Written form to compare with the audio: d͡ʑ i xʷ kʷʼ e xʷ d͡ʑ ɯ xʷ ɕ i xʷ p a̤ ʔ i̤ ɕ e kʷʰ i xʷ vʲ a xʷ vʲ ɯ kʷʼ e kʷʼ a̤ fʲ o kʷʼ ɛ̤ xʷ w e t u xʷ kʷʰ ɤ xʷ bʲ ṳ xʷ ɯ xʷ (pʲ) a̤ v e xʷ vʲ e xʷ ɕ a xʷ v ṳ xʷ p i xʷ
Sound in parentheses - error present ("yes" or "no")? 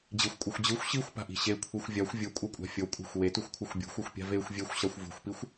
no